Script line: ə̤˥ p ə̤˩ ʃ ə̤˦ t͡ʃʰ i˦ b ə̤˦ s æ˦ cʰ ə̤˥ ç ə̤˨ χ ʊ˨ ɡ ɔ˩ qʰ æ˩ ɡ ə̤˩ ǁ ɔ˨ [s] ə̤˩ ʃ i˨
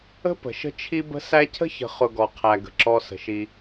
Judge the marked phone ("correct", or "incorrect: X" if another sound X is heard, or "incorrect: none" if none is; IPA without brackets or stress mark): correct